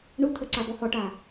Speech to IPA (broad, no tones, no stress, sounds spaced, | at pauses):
ɳ u t̪ʰ ə ǀ a b ɔ h ɔ ʈ a